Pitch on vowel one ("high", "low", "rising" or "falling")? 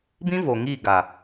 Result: high